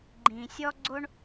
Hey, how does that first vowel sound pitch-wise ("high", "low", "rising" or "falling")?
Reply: low